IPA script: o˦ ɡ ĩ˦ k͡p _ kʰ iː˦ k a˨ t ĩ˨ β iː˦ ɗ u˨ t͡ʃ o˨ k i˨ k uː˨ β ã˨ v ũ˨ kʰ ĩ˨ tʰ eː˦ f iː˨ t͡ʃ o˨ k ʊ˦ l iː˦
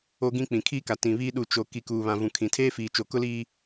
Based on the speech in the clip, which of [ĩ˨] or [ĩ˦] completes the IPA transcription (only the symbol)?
ĩ˨